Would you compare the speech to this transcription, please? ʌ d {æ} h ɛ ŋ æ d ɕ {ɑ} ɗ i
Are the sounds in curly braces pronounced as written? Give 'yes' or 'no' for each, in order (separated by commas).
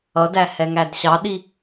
yes, yes